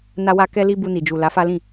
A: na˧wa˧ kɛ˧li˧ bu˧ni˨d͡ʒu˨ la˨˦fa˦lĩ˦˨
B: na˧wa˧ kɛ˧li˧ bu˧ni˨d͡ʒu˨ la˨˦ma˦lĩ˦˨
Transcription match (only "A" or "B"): A